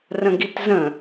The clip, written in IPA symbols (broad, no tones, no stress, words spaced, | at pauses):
rə̃ɡitzə̃